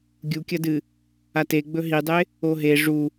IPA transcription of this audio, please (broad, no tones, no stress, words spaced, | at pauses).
ɡʲukʲɐdɨ | ateɡ͡bɵ ɦidˤe | oɦe ʐu